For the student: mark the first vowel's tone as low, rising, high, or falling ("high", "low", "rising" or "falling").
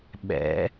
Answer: rising